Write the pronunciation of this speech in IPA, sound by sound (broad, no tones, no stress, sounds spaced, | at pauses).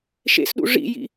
ʃ ḛ s ɗ ṵ ʐ ḭ j ḭ